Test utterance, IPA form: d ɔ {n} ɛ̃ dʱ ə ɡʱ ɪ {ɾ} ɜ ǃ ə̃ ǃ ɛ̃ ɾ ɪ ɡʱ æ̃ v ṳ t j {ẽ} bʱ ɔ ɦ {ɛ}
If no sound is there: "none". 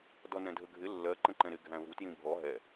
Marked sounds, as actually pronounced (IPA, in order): n, lː, ĩ, ɛ

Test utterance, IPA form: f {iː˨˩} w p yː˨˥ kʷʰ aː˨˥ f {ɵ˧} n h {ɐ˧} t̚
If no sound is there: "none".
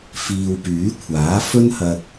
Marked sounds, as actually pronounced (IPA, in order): iː˨, ɵ˥, ɐ˧

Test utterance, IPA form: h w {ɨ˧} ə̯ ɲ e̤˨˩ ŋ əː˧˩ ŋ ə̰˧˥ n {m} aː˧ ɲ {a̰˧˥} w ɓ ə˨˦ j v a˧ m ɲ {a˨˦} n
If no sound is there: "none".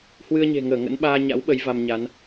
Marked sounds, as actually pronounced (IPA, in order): ɨ˧, ɓ, a̰˧˥, a˨˦

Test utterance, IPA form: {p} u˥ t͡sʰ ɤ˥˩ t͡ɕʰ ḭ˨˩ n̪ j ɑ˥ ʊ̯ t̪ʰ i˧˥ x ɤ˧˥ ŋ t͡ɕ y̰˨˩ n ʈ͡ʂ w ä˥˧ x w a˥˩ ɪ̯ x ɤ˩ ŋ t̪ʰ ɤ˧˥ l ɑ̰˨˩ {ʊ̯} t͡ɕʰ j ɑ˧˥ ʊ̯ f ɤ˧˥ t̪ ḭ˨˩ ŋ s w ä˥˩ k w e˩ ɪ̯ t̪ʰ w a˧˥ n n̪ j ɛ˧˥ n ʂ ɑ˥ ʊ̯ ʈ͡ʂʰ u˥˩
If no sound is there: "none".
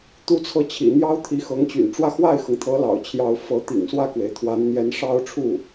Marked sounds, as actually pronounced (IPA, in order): t̪, ʊ̯

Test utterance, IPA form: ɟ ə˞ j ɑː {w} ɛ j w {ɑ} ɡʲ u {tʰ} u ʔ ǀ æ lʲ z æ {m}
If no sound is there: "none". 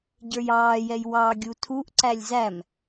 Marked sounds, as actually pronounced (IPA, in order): j, ɑ, tʰ, m

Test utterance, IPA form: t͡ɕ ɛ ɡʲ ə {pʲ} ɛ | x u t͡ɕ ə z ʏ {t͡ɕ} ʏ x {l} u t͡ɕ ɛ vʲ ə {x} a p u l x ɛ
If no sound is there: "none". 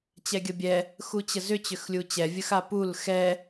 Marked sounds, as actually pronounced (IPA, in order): bʲ, t͡ɕ, lʲ, x

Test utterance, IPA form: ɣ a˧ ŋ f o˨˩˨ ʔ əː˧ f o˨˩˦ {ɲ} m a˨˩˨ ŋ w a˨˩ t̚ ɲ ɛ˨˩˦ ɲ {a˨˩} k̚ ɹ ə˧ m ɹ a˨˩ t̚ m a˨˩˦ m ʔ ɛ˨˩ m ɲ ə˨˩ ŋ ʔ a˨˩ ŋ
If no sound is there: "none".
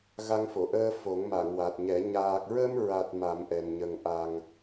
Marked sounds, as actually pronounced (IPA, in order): ŋ, aː˨˩

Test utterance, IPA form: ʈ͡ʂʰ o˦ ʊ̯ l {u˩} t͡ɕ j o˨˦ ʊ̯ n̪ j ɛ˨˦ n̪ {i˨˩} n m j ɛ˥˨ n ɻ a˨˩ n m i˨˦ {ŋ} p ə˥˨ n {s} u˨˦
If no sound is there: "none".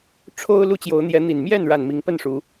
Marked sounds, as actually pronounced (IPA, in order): u˦, i˨˩, ŋ, ʂ

